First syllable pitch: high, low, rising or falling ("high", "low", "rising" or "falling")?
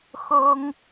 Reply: high